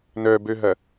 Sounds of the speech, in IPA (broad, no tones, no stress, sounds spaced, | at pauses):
n œ b ø ɦ ɐ